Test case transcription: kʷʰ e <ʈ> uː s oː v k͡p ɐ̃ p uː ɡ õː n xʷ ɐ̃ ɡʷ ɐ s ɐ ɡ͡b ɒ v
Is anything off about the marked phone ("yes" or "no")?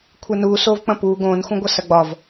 yes